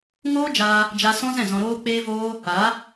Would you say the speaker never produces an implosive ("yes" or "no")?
yes